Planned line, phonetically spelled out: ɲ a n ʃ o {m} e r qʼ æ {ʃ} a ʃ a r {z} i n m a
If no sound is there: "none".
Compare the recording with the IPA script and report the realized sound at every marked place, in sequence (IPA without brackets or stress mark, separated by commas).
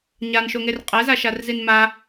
ŋ, z, z